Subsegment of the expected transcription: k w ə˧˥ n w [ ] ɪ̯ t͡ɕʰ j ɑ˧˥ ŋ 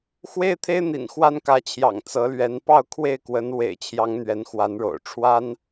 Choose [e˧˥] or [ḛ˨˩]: ḛ˨˩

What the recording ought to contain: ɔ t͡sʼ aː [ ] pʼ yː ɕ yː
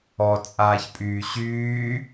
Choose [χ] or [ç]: ç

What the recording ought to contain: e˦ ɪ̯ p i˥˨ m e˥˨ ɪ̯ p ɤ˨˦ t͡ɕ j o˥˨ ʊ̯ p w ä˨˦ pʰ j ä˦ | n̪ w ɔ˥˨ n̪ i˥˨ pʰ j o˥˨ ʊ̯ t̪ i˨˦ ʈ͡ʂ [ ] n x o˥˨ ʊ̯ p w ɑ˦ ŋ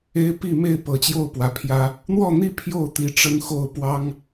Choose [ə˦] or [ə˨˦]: ə˦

